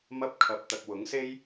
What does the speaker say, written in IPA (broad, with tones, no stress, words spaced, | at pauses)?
mɐ˧p̚kʰɐ˨p̚ t̪ɐ˨k̚wʊ˨˥ŋse˥j